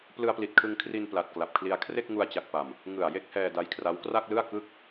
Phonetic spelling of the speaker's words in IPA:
p l ɯ˧ a̯ p l i˨˩ t̚ kʰ ɯ˧ ŋ kʰ r i˧ n p l a˨˩ t̚ k l a˨˩ p̚ kʰ l i˧ a̯ kʰ r e˥˩ k̚ ŋ u˧ a̯ t͡ɕ a˨˩ k̚ p a˨˩ m | ŋ ɯ˨˩ a̯ j e˥˩ k̚ h ɛː˧ d a˦˥ j kʰ r a˦˥ w k r a˥˩ k̚ l ɯ˥˩ a̯ k ɯ˥˩ k̚

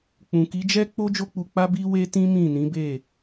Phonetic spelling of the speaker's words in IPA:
k͡p ũ˨ k i˨˦ d͡ʒ ɛ˦ k͡p o˦ d͡ʒ o˦ k͡p u˧ k͡p a˦ b i˦ w e˦ t ĩ˦ m ĩ˦˨ n ĩ˨˦ b e˦˨

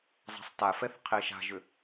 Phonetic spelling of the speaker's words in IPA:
zˤ a̤ sˤ t a f ɛ θ qʰ e ʃ a̤ ʒ ʏ

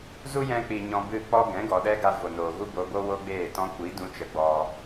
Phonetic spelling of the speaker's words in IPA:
z u˦ j ɛ̃˧ k͡p i˨ ɲ ɔ̃˧ b ɨ˦˨ k͡p ɔ˦ ɡ ɛ̃˨˦ ɡ ɔ˨ ɗ ɛ˦ ɡ a˧ v o˨ n oː˨ ɣ u˦ b o˧ b o˦ w o˦ ɡ͡b eː˦˨ t ɔ̃˦ kʷ i˨˦ d ũ˧ t͡ʃ ə˨˦ ɡ͡b ɔ˧

